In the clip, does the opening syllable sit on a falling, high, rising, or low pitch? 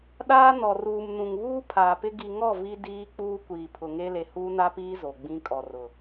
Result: high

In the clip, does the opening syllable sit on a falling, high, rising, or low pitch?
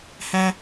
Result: low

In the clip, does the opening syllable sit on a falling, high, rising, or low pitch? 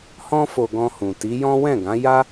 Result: high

